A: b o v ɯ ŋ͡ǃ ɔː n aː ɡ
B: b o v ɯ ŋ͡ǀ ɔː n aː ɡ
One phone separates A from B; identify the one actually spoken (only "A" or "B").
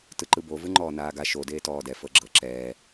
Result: A